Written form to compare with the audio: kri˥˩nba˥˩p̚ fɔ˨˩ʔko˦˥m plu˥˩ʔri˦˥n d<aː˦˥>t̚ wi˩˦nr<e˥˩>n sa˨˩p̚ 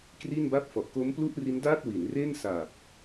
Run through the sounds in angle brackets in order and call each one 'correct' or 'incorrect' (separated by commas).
incorrect, correct